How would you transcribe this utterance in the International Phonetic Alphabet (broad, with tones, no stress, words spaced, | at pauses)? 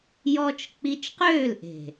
jɔ˧t͡ʃ k͡pi˧t͡ʃqøː˦˨lʔe̤˨